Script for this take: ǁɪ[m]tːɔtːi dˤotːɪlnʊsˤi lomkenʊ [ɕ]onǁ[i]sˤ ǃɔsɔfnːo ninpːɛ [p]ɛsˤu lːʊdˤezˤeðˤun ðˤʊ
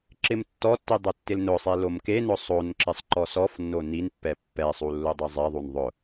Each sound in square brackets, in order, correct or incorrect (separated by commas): correct, incorrect, incorrect, incorrect